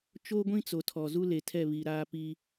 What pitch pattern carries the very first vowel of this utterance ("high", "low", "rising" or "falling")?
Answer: high